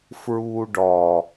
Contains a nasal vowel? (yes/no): no